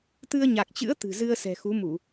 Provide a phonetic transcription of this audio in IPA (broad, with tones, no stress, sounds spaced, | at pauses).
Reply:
t̪ ɨ˧ ə̯ ɲ a˨˩ k̚ t͡ɕ ɨ̰˧˥ ə̯ t̪ ɨ̤˨˩ z ɨ˧ ə̯ s ɛ̤˨˩ x u˨˦ m u˧˩˨